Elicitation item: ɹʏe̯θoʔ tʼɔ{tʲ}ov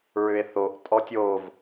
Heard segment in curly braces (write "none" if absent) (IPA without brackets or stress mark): tʲ